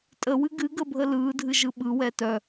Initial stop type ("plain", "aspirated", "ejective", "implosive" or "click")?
ejective